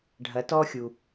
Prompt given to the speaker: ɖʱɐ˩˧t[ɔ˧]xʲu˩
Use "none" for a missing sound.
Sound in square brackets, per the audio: ɔ˧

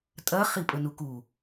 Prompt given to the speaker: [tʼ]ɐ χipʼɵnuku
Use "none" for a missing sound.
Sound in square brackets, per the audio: tʼ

